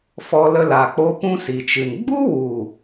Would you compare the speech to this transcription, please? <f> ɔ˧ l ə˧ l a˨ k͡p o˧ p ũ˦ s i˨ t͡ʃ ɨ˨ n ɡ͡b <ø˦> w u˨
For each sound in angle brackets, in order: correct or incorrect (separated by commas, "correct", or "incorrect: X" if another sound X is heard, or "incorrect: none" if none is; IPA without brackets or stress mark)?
correct, incorrect: u˦